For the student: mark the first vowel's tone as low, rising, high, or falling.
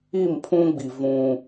falling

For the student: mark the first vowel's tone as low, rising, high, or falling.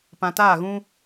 low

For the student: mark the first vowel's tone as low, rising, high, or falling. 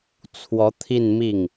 rising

